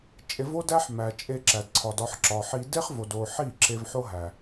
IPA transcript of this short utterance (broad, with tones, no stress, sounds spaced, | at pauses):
t͡ʃʼ e˧ v o˦ d æ˦ ħ m æ˨ t͡ʃʼ e˧ ǁ æ˨ d ǀʰ ɒ˨ d ɒ˧ ħ ǁ ɒ˨ ħ i˧ d e˦ χ v o˨ d o˨ ħ i˦˨ ǁ e˧ v ħ o˦ ɦ æ˨